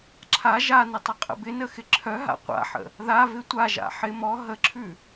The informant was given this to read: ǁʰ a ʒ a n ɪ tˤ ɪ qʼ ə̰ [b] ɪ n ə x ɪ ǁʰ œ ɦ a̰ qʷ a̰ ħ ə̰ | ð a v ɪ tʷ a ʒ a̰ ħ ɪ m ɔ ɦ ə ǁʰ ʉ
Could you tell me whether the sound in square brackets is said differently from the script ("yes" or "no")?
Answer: no